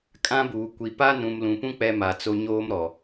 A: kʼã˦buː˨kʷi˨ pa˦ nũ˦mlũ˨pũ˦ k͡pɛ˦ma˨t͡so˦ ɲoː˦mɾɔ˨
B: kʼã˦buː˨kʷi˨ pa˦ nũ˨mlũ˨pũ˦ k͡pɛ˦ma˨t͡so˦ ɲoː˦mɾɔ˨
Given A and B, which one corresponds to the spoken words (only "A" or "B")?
B